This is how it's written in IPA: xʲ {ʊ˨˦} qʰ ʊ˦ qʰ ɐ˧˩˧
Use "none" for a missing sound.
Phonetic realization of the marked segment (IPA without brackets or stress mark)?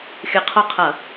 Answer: ə˨˦